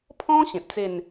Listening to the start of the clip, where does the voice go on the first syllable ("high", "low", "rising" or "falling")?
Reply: high